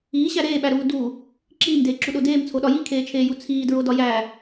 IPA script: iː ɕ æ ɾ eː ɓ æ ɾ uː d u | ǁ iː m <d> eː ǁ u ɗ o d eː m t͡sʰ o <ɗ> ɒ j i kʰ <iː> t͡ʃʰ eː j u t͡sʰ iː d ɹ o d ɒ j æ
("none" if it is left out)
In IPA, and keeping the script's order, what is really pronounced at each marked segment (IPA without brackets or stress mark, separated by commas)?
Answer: d, ɗ, eː